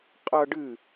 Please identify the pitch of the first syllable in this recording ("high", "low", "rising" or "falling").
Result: high